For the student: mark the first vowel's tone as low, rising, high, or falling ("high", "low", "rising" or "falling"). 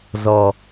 low